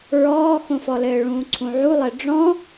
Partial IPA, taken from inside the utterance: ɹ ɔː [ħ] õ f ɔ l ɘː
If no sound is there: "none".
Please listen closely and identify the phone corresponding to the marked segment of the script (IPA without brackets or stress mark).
x